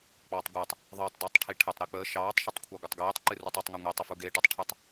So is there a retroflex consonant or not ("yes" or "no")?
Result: yes